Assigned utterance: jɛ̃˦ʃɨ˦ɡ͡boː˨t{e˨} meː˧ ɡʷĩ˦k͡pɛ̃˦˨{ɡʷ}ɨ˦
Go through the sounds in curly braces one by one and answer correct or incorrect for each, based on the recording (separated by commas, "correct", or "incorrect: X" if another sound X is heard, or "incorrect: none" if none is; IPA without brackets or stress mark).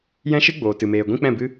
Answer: incorrect: ɨ˨, incorrect: b